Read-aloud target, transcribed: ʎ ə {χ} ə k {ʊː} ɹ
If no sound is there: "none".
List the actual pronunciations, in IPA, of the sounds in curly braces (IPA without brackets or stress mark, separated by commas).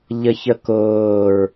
ç, ʊː